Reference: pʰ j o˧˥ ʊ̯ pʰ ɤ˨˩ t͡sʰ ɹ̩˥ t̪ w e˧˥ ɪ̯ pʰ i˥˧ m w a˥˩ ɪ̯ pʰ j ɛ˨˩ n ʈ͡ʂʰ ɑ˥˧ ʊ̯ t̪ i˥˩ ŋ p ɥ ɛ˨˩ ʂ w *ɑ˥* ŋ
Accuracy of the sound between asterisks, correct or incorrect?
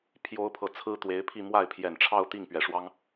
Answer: correct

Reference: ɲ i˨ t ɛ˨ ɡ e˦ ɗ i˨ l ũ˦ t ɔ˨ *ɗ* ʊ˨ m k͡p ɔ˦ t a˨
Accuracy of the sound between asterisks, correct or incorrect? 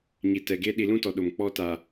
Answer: correct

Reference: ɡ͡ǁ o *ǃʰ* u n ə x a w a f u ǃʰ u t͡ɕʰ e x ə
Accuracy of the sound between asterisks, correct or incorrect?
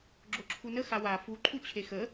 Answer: incorrect: ǁʰ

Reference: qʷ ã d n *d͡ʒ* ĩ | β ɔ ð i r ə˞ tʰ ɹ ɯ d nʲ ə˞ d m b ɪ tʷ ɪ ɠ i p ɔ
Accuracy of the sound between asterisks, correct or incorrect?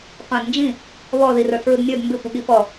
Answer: correct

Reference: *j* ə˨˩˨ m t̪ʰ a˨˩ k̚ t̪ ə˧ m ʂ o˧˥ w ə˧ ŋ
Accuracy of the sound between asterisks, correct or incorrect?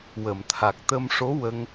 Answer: incorrect: w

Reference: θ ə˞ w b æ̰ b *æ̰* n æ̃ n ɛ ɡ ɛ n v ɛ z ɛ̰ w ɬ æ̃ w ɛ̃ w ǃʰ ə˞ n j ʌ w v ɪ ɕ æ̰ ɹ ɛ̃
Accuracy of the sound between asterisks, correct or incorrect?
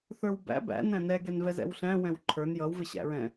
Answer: correct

